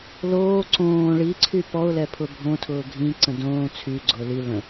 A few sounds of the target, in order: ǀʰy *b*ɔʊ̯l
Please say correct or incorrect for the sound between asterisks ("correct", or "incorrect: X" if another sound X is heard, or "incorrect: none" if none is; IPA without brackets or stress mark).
incorrect: p